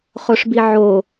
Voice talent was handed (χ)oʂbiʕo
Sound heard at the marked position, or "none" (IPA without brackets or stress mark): χ